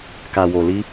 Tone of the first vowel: low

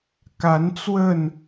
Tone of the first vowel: rising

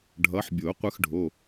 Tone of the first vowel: rising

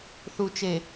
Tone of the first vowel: low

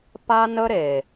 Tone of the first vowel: high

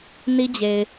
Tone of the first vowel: high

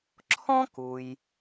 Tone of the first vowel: high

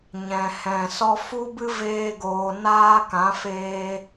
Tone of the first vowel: low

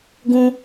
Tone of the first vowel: high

